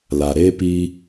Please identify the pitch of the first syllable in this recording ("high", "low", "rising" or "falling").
low